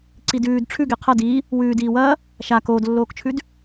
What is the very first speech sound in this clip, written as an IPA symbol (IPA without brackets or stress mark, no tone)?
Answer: ǀ